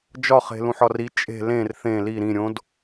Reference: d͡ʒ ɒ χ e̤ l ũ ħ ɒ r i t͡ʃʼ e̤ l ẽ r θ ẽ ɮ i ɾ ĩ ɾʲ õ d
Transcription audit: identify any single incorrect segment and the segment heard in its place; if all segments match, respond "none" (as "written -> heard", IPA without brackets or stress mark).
ɮ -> l